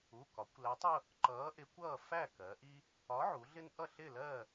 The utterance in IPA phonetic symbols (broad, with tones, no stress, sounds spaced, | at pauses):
u˩˧˩ k ɒ˩˧ kʷ l æ˨˥ tˤ ʊ˩˧˩ | ǃ ʌː˨˥ ʔ ɪ˨˥ kʷ ʌː˥˨ f æ˥˨ k ɜ˩˧ ʔ i˦ | ɒ˨˥ ʕ u˩˧ ɮ ɪ˦ n ʔ ʌ˥˨ ɬ ɪ˥˨ l ɜ˥˨